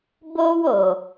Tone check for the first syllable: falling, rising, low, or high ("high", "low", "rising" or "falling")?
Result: high